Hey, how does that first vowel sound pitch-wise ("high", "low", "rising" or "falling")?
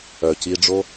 low